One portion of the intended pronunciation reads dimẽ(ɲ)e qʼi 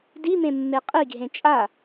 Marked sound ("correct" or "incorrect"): incorrect